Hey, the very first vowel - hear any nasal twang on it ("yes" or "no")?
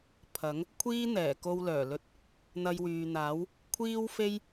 no